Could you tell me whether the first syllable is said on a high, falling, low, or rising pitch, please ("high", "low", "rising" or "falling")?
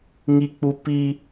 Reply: high